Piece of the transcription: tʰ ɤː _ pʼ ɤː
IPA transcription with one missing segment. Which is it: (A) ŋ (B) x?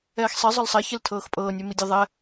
B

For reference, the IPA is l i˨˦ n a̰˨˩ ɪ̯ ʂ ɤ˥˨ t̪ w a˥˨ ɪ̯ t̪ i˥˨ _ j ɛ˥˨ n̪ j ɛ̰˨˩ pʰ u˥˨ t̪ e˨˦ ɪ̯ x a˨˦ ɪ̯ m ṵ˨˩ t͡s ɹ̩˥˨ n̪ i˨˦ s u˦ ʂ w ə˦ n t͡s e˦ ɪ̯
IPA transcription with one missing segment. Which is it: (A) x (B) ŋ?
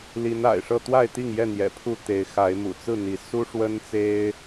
B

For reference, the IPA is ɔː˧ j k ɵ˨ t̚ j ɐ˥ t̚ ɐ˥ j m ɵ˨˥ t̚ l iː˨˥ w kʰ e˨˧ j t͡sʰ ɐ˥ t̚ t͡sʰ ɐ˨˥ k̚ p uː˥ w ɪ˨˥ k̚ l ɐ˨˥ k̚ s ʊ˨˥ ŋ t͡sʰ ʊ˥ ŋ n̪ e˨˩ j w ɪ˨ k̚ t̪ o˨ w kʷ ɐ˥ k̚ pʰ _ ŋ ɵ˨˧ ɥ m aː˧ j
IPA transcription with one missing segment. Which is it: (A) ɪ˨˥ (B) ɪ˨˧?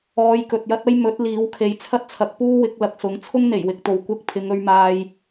B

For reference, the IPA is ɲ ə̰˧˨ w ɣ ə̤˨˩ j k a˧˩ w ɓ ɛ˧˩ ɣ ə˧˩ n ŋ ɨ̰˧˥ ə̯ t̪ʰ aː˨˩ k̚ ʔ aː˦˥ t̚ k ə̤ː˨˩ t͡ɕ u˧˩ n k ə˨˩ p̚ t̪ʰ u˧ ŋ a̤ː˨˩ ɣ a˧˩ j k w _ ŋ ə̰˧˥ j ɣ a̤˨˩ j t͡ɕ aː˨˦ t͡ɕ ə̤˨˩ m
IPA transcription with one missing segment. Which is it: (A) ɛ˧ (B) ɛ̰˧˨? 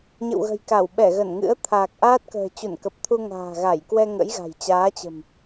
A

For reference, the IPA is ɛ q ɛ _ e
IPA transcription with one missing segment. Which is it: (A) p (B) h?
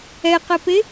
A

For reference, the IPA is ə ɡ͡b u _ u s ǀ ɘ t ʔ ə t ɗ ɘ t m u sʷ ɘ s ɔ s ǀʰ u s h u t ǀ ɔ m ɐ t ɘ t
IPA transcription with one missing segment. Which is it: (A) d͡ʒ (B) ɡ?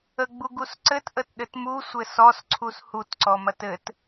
B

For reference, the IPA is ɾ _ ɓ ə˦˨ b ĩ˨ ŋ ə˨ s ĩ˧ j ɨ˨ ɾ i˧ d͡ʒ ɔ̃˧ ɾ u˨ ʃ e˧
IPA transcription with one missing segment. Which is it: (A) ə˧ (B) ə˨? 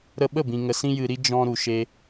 A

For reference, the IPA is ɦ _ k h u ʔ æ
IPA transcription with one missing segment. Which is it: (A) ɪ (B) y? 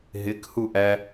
A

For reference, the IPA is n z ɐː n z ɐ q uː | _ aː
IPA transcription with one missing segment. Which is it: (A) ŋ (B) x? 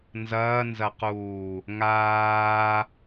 A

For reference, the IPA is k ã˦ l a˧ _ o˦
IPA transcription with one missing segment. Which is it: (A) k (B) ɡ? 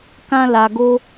B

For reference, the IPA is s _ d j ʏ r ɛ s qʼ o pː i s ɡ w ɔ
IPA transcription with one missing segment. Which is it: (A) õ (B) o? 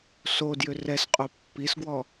B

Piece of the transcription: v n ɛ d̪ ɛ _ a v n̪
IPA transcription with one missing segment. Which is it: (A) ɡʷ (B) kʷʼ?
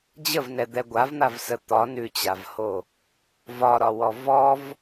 A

